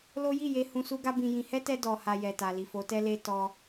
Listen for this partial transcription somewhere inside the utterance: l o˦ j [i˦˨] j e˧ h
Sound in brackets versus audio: correct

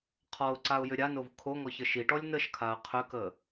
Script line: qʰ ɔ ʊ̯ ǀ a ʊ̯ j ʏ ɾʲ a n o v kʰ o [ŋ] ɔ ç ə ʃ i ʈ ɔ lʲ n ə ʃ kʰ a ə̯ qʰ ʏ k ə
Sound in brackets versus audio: correct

